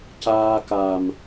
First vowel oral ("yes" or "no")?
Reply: yes